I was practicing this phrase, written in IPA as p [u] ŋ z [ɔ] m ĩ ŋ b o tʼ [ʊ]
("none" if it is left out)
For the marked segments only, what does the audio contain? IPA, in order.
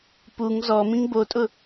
u, ɔ, ʊ

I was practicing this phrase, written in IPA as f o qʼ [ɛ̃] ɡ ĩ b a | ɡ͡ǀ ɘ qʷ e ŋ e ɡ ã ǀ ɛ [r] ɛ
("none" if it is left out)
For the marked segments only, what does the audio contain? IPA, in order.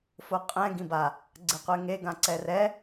ɛ̃, r

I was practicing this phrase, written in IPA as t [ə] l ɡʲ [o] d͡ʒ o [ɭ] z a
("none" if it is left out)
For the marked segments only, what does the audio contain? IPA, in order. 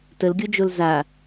ə, o, l

